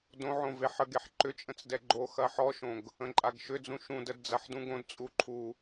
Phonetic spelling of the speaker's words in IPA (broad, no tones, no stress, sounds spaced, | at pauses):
d õ ʕ õ v e ħ ə ɡ e ħ ǃ ʏ t͡ʃʼ ə̃ t͡s d ɛ ɡ͡ǃ o x ɐ ħ ɔ ʃ õ ɡ | ə̃ ǃʼ a ɡ ʃ ʏ d͡z ũ ʃ ũ d ə d d͡z ɐ ħ d ũ ɡ õ d t͡sʼ u ǃʰ u